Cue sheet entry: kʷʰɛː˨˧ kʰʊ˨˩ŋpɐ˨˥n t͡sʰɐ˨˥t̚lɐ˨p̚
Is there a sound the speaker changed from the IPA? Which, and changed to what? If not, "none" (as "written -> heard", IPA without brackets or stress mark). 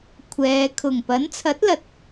p̚ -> t̚